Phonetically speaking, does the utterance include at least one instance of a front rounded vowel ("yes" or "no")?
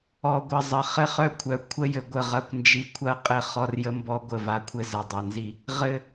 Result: yes